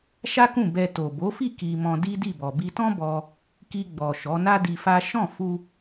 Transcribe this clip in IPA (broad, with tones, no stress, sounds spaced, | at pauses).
ʃ a˦ k ũ˦˨ b ɛ˧ t o˨ b o˨˦ f i˦˨ k i˧ m ɔ̃˧ d i˦ d i˦˨ b ɔ˨ b i˧ t ɔ̃˦ b ɔ˧ | k i˧ ɡ͡b ɔ˨ ʃ ɔ˨˦ n a˦ d i˧ f a˦ ʃ ɔ̃˦˨ f u˧